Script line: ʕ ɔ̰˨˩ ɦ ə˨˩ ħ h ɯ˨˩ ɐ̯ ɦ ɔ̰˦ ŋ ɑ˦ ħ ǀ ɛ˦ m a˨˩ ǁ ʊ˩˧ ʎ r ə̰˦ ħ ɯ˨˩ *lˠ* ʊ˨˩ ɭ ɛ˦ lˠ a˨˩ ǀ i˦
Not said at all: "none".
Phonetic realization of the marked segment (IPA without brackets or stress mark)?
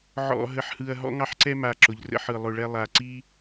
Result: lˠ